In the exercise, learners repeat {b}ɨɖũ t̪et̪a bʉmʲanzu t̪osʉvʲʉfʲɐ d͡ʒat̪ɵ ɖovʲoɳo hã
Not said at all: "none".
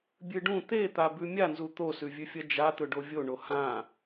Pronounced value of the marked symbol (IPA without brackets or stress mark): bʲ